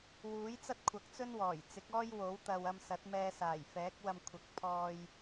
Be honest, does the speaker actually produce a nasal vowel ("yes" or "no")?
no